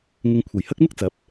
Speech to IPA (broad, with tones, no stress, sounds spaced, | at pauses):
ŋ ɪ˧ ŋ kʷʰ ɐ˨˩ j h ɐ˥ k̚ m ɪ˥ k̚ t͡s ɐ˨˥ p̚